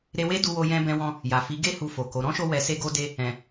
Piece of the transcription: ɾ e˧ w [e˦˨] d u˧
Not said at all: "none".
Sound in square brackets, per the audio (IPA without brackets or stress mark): e˦